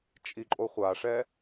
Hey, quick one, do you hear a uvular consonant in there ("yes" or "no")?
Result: yes